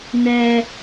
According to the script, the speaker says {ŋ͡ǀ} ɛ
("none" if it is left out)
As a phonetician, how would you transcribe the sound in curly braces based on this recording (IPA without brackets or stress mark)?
n